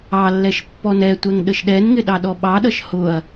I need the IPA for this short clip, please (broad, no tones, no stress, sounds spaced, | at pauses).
ɑ lː ɛ ʃ pː ɔ n ɛ tʷ ɛ ŋ ɗ ə ʃ ɗ ɛ n ŋ ɪ ɗ ɑ ɗ ɔ ɓ ɑ ɗ ʌ ʃ h ʊ ɐ̯